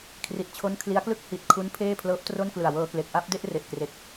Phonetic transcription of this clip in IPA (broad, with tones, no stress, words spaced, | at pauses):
kʰri˨˩t̚t͡ɕʰo˦˥n kʰli˦˥a̯klɯ˥˩k̚ hi˨˩t̚ kʰu˦˥n pʰeː˥˩pʰlɤː˦˥p̚tro˥˩nklɯ˨˩a̯ wɤː˧kle˨˩k̚ʔa˥˩p̚de˥˩ʔ re˨˩ʔkre˨˩k̚